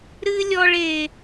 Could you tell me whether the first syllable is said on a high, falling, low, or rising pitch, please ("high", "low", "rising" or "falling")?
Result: high